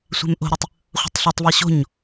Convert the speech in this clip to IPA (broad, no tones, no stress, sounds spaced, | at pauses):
sʷ ɛ̤ m ʔ o̤ ɾ u tˤ | χʷ ə̤ tˤ ɬ o tˤ v ɤ ɕ o̤ ɲ